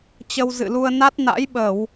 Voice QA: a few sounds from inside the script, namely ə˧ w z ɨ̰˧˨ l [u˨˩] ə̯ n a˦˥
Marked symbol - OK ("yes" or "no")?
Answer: no